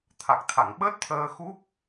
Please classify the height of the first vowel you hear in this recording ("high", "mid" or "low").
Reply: low